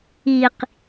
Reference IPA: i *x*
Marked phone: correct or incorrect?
incorrect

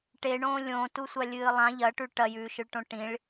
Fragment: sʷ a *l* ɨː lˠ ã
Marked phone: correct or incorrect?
incorrect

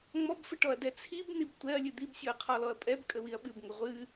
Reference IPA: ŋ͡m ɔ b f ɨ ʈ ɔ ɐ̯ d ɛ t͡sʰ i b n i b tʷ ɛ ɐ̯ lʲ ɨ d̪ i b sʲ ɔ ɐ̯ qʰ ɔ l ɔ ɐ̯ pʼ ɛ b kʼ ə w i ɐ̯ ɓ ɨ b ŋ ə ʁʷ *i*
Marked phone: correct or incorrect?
incorrect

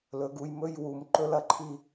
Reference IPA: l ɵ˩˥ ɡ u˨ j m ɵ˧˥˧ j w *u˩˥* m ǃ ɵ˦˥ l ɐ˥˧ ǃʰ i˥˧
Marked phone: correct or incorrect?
incorrect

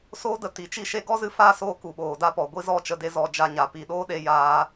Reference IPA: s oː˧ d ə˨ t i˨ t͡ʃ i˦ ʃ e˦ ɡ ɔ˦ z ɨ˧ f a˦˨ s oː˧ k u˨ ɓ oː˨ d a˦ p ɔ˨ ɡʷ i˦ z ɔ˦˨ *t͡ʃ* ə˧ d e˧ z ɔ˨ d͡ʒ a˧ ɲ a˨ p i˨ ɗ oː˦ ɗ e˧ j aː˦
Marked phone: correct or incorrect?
correct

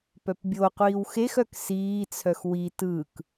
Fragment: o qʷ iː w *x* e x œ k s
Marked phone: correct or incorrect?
correct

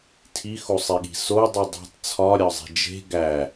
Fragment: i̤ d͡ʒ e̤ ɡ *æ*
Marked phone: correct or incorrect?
correct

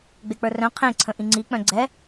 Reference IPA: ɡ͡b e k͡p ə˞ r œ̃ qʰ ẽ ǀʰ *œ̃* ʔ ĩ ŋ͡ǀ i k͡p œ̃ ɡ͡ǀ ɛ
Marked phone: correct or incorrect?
incorrect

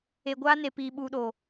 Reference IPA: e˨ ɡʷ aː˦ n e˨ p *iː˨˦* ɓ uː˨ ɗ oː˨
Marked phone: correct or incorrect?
incorrect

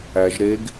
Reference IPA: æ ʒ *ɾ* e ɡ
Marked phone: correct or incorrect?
correct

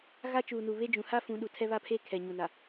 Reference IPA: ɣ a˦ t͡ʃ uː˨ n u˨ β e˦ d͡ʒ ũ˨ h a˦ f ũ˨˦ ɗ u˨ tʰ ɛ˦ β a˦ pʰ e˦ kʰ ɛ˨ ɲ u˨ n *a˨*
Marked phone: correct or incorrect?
correct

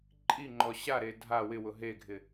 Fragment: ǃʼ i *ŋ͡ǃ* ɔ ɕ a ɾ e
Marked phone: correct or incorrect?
correct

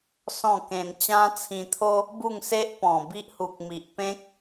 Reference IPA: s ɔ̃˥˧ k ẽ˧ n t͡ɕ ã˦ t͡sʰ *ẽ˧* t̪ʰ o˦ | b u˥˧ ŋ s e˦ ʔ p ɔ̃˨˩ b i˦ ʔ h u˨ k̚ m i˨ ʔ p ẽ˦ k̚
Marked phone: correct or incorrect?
incorrect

